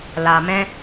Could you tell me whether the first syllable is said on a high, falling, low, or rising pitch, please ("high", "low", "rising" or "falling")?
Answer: low